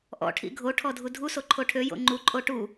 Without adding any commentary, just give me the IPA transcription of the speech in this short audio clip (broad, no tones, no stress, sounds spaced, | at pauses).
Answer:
ʔ ɔ̰ ʈʰ ḭ ɡʱ o ʈʰ ɔ dʱ u dʱ u s o ǃʰ o ʈʰ ø j o̰ ŋ͡ǃ u ǃʼ o ʈ u